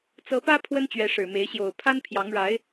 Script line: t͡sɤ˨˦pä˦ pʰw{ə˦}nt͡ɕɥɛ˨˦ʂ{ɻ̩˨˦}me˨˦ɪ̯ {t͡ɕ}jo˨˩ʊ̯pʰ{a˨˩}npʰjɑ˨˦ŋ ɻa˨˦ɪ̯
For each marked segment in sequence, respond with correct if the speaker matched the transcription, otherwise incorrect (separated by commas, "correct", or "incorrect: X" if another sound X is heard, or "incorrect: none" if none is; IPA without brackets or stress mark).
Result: correct, incorrect: ɻ̩˨˩, incorrect: ɕ, incorrect: a˦